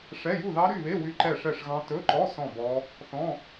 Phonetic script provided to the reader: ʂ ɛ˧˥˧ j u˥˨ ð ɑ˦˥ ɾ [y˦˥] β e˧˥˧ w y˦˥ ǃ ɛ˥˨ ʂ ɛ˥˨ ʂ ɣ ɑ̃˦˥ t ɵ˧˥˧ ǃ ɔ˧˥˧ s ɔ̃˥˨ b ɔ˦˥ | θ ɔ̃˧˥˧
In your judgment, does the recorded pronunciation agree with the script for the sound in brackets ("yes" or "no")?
no